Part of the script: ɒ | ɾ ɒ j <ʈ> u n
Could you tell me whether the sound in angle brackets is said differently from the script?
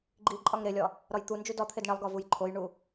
yes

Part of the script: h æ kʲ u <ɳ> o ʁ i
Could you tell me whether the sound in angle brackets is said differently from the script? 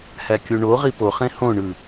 no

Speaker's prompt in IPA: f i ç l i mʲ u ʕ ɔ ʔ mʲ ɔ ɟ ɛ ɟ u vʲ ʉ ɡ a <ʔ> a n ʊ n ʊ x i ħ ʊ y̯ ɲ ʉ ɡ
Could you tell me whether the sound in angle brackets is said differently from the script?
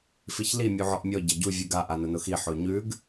no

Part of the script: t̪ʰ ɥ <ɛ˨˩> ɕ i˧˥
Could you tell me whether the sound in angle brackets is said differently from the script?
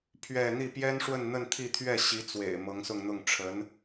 yes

